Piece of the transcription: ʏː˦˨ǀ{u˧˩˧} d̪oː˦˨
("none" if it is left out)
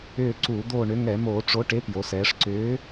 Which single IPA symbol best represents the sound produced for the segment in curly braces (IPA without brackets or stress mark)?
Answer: u˧˩˧